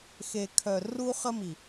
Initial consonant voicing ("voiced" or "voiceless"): voiceless